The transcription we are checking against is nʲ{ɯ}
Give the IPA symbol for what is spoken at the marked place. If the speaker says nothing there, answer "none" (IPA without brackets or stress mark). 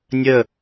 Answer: ə